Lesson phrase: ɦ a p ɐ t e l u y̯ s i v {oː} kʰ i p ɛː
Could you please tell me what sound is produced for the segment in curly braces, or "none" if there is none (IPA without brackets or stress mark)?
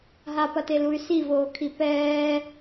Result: oː